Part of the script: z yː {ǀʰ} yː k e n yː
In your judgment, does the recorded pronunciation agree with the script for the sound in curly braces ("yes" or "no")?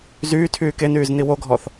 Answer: no